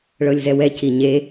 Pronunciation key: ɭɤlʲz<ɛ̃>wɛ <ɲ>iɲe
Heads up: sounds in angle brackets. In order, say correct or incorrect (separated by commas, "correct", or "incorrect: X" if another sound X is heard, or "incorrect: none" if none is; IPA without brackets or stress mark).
incorrect: ɛ, incorrect: c